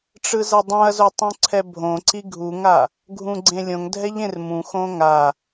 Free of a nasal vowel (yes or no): no